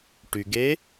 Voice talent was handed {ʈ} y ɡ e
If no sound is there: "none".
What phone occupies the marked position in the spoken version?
ʈ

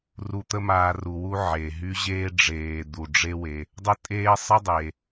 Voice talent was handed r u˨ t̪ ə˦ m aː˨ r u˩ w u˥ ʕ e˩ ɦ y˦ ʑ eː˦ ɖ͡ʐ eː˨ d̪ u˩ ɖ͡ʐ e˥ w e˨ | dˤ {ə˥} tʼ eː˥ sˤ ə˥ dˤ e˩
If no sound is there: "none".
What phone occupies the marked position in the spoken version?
ə˥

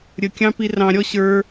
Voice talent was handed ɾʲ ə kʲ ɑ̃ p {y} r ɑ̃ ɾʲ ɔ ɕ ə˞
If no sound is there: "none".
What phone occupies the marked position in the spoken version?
i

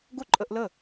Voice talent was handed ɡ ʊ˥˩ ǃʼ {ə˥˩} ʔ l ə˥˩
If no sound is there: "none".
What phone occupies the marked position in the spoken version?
ə˧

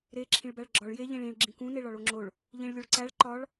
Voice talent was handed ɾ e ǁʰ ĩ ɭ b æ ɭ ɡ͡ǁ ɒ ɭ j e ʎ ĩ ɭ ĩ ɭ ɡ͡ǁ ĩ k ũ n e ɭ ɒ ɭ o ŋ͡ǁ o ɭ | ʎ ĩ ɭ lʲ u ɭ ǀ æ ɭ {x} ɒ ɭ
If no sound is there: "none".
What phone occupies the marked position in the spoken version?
ǃ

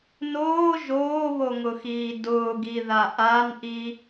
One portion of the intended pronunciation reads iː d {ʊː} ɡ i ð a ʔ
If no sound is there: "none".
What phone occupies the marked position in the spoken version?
ʊː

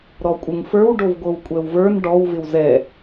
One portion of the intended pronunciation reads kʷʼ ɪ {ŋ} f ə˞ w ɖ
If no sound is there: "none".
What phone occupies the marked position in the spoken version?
ŋ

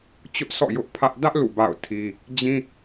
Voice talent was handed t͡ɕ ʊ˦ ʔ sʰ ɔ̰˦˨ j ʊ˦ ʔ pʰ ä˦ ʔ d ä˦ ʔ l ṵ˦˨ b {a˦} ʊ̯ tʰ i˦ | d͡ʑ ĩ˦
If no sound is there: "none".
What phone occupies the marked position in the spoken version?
a̰˦˨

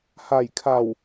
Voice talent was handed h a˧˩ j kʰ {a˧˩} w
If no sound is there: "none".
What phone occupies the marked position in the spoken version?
a˧˩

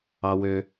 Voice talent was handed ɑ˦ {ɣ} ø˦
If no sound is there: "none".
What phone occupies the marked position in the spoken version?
w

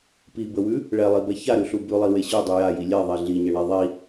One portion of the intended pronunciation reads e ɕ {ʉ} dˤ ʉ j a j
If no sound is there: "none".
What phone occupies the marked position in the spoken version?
ʉ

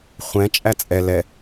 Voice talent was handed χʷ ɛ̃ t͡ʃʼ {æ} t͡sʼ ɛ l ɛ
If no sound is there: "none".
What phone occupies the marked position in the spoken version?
æ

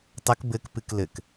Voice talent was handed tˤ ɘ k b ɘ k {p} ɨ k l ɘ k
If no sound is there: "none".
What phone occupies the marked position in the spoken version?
p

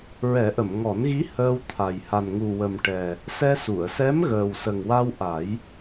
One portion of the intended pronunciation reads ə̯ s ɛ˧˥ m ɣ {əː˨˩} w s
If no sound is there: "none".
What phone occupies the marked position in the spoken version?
əː˨˩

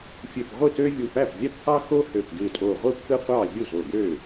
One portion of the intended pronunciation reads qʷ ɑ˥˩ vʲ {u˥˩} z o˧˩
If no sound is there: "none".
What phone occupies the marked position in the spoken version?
u˥˩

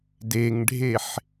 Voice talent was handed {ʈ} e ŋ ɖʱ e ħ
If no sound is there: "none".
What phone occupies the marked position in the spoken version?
d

